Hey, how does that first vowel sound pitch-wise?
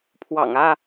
low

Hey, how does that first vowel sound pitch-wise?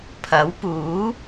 rising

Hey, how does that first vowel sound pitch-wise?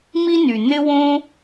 high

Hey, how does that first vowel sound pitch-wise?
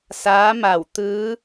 rising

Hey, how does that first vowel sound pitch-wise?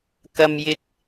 high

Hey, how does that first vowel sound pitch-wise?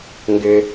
low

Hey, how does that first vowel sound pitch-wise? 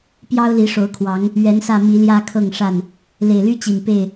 high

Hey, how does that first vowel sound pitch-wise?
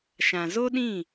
low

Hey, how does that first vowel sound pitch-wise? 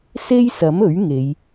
high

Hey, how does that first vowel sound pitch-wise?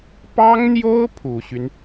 high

